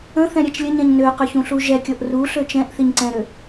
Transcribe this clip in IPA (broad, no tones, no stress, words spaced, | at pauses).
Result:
ə̃θɛ̃ ɾʲɛt͡ʃlʲəɲɛ̃ɲ nøqøç ũɬuʒɛkʲɤʔ ru ɬøt͡ʃɛ̃ʔθiɲ ǀɛ̃ɾø